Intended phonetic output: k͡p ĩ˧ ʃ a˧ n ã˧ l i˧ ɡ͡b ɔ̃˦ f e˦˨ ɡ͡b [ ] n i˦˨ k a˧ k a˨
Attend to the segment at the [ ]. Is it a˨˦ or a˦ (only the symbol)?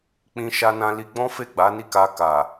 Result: a˨˦